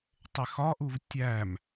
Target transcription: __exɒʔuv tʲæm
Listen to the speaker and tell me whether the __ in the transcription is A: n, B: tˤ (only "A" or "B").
B